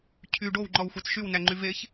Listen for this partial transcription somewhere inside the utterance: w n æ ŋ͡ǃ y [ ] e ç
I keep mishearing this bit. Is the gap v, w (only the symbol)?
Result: v